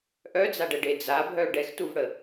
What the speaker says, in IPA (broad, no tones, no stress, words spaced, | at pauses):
ʔœd͡zaɖɛɖe d͡zabʱœ ɖɛxtuvɽə